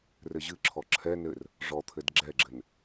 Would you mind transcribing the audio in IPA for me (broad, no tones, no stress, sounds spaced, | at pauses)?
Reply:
r ɘ ʑ ɨ ǁʰ ɔ ǁʰ ɛ n ɘ r | ʐ ɔ t̪ʰ ɘ d ɡ͡ǁ ɛ ɡ͡ǁ ɘ n